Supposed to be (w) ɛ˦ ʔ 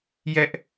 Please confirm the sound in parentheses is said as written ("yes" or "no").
no